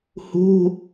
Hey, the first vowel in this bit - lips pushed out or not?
yes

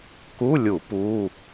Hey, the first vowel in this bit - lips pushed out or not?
yes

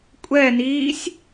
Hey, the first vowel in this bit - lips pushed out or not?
no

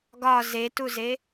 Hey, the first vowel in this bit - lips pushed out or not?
yes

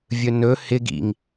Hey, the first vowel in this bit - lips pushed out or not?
yes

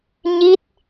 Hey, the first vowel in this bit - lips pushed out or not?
no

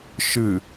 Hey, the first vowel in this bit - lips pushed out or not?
no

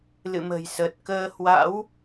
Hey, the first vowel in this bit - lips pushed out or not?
no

